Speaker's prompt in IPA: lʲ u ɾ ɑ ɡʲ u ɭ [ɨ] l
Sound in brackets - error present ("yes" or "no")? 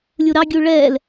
yes